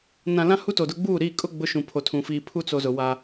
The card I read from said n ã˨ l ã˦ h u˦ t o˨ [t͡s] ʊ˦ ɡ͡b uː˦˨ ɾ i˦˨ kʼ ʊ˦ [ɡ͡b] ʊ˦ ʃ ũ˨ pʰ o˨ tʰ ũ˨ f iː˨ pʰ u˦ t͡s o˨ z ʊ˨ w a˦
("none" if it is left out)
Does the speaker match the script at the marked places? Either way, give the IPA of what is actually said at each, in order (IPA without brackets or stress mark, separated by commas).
d, ɡ͡b